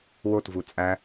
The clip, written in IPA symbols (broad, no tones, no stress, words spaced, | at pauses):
wotvu t͡sʼæ